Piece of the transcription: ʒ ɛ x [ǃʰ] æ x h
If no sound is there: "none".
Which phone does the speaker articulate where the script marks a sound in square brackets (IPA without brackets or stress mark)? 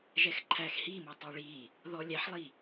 ǃʰ